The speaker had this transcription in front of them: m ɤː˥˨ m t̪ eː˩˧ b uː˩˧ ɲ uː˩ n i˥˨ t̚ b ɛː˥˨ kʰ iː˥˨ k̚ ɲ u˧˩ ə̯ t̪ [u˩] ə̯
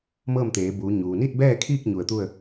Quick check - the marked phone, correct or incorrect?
incorrect: u˥˨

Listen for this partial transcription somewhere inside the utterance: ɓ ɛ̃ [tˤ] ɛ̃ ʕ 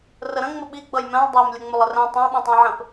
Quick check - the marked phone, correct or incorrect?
correct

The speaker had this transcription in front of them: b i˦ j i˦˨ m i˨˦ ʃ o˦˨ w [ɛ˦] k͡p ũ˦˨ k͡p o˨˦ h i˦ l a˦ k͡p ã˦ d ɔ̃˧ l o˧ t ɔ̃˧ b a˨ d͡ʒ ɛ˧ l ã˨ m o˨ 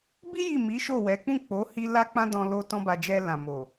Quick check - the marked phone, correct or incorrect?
incorrect: ɛ˨˦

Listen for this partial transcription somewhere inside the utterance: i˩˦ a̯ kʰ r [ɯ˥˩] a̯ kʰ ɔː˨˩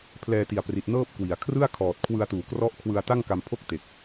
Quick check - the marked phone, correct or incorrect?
correct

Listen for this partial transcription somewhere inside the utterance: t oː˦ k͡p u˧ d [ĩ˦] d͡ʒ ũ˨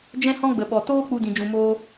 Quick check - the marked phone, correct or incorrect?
incorrect: ĩ˨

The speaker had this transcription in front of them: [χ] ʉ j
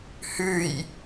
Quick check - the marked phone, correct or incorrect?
incorrect: h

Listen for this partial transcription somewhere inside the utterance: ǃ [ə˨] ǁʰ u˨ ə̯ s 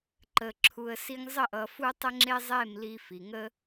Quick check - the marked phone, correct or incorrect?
correct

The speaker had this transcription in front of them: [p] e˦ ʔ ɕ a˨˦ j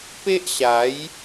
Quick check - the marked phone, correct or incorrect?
correct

